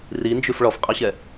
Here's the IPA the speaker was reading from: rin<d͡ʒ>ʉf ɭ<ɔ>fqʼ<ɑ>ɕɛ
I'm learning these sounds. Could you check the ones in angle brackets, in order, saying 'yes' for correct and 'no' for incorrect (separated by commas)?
yes, yes, yes